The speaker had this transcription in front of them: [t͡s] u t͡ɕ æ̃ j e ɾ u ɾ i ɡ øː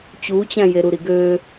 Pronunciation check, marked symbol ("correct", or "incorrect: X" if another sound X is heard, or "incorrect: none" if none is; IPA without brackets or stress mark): incorrect: t͡ɕ